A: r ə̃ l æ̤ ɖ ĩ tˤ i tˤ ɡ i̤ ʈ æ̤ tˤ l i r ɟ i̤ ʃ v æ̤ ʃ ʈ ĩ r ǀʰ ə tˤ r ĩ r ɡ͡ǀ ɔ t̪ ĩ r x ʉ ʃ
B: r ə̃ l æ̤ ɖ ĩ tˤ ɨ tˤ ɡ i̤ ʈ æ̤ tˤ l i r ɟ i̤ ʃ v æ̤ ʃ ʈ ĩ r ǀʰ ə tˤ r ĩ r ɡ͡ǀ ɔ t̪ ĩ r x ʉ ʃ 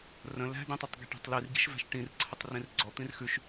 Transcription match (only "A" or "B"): A